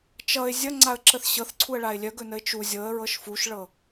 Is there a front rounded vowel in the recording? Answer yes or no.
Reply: yes